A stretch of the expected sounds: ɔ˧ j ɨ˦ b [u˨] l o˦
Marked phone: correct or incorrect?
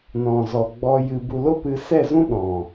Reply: incorrect